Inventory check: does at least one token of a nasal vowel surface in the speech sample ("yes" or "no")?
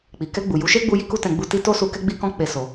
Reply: yes